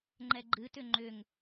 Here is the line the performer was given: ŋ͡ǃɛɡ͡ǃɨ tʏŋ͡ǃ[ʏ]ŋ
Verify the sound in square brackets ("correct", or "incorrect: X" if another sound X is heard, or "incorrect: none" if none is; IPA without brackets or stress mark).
correct